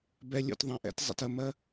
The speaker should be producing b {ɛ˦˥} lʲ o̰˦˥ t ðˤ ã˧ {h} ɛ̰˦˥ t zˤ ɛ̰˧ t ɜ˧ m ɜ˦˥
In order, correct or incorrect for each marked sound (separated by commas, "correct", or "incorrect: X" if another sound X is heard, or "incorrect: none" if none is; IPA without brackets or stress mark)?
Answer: correct, incorrect: ʔ